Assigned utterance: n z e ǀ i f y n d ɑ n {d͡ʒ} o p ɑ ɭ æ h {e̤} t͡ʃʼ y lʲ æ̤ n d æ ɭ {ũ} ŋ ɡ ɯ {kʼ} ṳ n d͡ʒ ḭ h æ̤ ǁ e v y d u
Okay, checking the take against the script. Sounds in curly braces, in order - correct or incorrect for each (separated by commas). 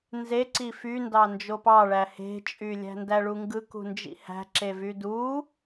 correct, correct, incorrect, incorrect